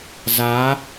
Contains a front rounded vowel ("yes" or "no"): no